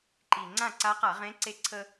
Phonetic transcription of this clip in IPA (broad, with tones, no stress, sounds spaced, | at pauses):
ǃ i˨˩ ŋ͡ǀ ã˥˨ ǀ a˧˥ q a˧˩˧ ʁ ẽ˧˥ ǀ e˥ ǀʰ ə˥